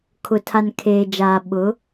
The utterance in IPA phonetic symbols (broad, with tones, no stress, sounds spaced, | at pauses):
kʰ ʊ˨ tʰ a˨ n kʰ eː˨ d͡ʒ aː˨ ɓ ʊ˨˦